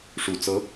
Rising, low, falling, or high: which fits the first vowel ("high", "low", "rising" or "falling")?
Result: low